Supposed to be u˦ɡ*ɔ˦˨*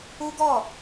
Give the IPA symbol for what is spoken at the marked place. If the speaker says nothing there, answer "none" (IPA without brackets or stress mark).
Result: ɔ˦˨